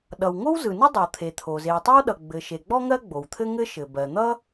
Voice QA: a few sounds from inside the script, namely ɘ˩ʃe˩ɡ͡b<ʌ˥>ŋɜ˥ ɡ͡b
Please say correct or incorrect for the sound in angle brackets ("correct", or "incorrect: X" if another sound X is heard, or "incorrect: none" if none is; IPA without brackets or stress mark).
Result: incorrect: ɔ˥